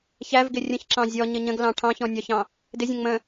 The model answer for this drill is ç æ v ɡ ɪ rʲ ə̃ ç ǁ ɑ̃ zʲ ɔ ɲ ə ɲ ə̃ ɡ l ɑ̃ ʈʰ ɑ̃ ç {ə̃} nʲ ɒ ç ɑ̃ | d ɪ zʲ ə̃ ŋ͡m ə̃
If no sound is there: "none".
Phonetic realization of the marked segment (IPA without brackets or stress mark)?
ɔ̃